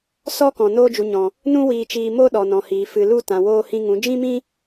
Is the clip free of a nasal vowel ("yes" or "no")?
no